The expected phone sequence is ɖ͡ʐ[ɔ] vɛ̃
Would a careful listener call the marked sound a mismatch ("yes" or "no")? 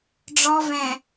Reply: no